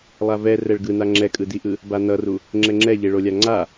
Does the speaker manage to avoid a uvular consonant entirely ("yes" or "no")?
yes